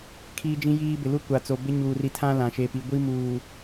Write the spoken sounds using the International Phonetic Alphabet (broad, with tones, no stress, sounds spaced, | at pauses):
kʰ iː˦ d͡ʒ ĩ˦ j iː˦ b ɪ˨ l u˦ kʷ a˨ t͡s o˨ b ɪ˦ ɲ uː˨ r i˨ tʰ ã˦ l ã˨ ʃ e˨˦ p i˨˦ ɡʷ i˦ m uː˨